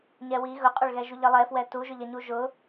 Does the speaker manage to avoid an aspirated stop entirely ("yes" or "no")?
yes